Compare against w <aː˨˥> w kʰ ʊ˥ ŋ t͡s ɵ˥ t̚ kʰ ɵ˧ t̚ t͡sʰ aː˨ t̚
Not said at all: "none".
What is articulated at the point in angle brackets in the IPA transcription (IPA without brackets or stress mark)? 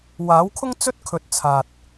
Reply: aː˨˥